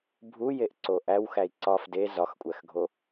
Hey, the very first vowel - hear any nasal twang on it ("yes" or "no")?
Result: no